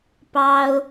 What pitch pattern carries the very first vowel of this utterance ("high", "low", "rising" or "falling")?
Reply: high